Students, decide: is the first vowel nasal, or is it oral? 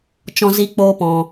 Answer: nasal